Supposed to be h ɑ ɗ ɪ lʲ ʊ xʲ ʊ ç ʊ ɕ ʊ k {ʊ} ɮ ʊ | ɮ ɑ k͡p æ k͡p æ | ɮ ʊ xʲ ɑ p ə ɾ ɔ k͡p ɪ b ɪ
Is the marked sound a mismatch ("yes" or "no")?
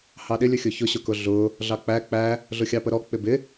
no